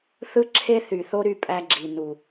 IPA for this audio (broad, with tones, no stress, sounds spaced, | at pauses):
θ ɯ˦ ǁʰ e˦ θ y˨ θ o˦ ɾ y˦˨ pʼ æ˦ ɡ͡ǁ i˨ n u˨